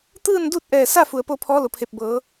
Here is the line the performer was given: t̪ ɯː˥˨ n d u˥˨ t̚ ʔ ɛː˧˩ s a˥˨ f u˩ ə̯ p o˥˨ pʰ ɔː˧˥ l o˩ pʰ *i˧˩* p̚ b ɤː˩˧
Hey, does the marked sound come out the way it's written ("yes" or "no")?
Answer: no